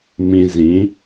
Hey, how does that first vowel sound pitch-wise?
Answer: low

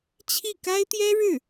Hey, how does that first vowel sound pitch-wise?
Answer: falling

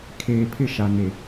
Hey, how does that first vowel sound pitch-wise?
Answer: low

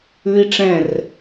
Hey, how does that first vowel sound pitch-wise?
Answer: high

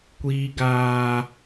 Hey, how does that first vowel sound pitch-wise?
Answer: high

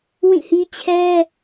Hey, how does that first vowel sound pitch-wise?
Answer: falling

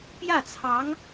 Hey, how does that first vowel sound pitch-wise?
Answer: falling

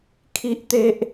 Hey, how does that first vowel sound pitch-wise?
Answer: high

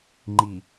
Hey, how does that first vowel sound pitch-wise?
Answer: low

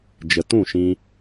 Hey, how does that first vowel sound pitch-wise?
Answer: low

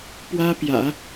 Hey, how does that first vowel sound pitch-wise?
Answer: high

